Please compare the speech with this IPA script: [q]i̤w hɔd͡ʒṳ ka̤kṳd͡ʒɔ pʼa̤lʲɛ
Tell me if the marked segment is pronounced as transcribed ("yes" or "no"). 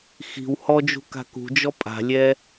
no